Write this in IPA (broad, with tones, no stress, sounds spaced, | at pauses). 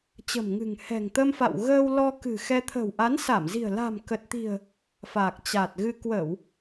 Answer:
t͡ɕ ə̤˨˩ m ŋ ɨ̤˨˩ ŋ h ɛ̤˨˩ ŋ t̪ ə˧ m f a̰˧˨ w ɣ əː˧ w l ɔ˧ k ɨ̤˨˩ x ɛ˧ t̪ʰ ə̤˨˩ w ʔ a˨˦ n s a˧˩ m z i̤˨˩ ə̯ l a̤˨˩ m k ə˨˩ t̚ t̪ i̤˨˩ ə̯ | f aː˨˩ k̚ t͡ɕ a˨˩ t̚ ɣ ɨ˧ k w ə˧˩˨ w